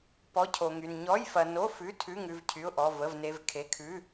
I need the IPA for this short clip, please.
pɔ˧˥˧cʰo˧ŋy˧n ɲɔ˧˥˧jfɐ˧no˧˥˧ fʉ˧˥˧ tʰʉ˧˥˧ŋʉ˧v cʰy˧˥˧ʊ̯ʔɔ˧˥˧ və˧˥˧vne˧˥˧vkʰe˧˥˧ kʰʉ˧˥˧

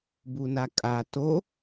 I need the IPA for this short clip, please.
bunakʼa to

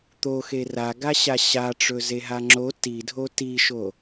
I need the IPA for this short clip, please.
t̪oxe raɡaɕa ɕaʈ͡ʂɵzeɦa ŋ͡ǁo tidʱo tiʃo

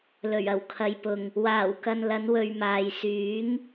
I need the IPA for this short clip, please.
lɵ˨˩ɥɐ˨˩wkʰɐ˨jpʊ˨ŋ | waː˨˩wkɐ˨n lɐ˨˧nwɵ˨ɥmaː˨j syː˨˥ŋ

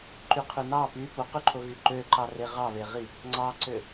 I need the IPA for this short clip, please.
ǃyqʰynɑ py poqyǃʰoɣy ǃøǃɑre ʁɑβeʁi | ŋ͡ǀɑǀø

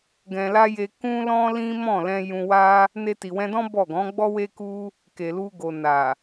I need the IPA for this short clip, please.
ɡɛ̃˧la˦ je˧kũ˦lɔ̃˦lĩ˦ mɔ̃˦˨lɛ̃˧ jũ˧wa˦ | ne˧ti˨wɛ̃˧dɔ̃˦ bɔ˦˨ɡɔ̃˨˦ɡ͡bɔ˦ we˧ku˧ | ke˨lu˧ɡo˨ na˨

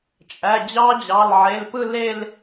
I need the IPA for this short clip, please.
t͡ʃʼæ˩˧˩ d͡ʑɑ˦˥d͡ʑɑ˩˧˩lʕe˩˧˩lpɯ˥˧ le˥˧l

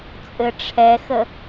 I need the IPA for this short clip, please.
t͡sʼɘʈ͡ʂʰɛxə

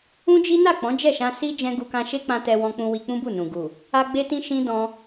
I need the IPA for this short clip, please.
ũ˦d͡ʒi˦ na˦˨k͡pɔ̃˨˦ d͡ʒɛ˦˨ʃã˧ si˦d͡ʒɛ̃˧ ɡu˧kã˧ʃe˦k͡pã˧ tɛ˧wɔ̃˧k͡pũ˧ wi˧k͡pũ˦bu˦˨nũ˨ ɡu˨ | a˦ ɡ͡be˦tĩ˦ ʃĩ˦ dɔ̃˧

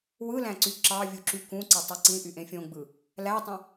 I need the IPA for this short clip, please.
wɯlæ̃ǀy ǁɑvʲuǁy kũǀetˤe ǀĩʔyʔẽ fʲõɡ͡bɯ | lætˤẽ

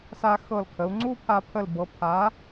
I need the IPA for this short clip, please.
sa˧xɤ˧˩l kʰə˩˧u̯ŋ͡ǀu˥˧pʰa˧ pʰə˧˩lbɤ˩˧ pʰa˩˧

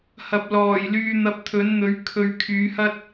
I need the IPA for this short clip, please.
hɐ˨p̚lɔː˨˩j lyː˧n̪ɐ˧p̚t̪ʰɵ˨˥nn̪ɵ˨˥ɥ kʰɵ˧ɥ kʰyː˨˧hɐ˥t̚

